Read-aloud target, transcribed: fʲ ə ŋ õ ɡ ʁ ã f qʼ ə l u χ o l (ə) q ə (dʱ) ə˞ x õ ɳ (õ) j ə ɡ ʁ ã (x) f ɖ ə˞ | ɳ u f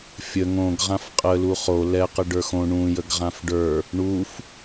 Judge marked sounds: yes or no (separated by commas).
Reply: no, no, no, no